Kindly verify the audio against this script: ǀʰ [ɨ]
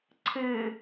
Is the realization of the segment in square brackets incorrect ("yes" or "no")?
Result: no